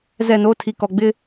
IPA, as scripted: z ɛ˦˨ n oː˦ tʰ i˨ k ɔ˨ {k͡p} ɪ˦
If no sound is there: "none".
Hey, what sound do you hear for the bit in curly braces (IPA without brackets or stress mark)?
ɡ͡b